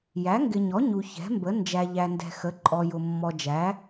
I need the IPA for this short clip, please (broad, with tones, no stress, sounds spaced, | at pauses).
j æ˩˥ ŋ ɡ ɪ˨ ɲ ɔ˩˥ ɲ u˨ ç ɛ̤˩˥ m b ə˩˥ n d͡ʒ æ˨ ʎ æ˨ n d ɛ̤˨ x ə˩˥ ǃʼ ɔ˨ j ʊ˨ mː ɔ˨ d͡ʒ æ˩˥